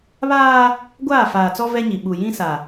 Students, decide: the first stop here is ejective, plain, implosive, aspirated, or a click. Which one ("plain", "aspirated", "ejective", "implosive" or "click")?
plain